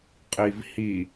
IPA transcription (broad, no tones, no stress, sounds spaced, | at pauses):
qʼ i v h i